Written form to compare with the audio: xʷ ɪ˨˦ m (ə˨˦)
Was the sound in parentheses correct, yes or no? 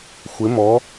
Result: no